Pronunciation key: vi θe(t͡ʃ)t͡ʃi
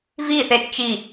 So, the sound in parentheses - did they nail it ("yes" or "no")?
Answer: no